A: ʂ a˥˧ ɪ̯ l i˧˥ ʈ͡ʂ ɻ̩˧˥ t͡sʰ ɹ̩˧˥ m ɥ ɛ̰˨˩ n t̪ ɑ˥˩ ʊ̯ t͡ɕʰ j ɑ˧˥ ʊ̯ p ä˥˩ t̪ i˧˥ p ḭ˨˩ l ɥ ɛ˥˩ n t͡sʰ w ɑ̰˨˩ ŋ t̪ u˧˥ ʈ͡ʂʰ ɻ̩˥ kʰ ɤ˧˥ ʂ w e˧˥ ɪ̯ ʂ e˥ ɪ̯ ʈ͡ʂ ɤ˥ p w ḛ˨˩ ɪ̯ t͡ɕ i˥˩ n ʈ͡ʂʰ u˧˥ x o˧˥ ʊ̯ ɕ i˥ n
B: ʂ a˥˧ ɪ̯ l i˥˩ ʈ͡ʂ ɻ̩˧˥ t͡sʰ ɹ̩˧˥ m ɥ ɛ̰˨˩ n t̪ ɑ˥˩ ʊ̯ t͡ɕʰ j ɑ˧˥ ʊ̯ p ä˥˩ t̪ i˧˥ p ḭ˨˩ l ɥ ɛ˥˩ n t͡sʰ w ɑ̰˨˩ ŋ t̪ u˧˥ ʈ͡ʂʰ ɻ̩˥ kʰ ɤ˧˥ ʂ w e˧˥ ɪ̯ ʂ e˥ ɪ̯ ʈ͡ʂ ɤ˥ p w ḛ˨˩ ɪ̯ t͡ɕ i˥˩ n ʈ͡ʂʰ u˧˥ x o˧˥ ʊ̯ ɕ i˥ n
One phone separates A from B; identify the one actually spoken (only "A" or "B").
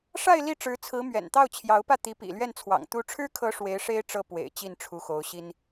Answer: B